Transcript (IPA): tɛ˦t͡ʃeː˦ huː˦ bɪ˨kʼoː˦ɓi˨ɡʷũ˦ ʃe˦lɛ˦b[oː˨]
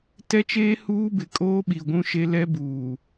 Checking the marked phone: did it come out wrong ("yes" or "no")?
yes